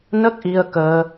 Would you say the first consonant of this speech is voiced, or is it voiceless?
voiced